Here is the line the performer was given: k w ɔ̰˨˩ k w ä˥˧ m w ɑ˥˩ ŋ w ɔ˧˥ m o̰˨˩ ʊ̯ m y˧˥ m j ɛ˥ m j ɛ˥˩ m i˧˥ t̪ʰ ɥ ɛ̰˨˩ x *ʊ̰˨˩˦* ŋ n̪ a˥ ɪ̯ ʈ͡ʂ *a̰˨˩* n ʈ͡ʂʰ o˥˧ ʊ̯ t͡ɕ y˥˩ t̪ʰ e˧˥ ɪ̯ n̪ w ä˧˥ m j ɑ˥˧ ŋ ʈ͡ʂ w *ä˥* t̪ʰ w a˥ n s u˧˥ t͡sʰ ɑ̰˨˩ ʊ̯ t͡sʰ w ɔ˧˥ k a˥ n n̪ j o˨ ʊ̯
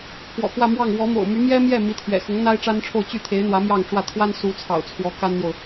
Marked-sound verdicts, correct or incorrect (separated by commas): incorrect, incorrect, incorrect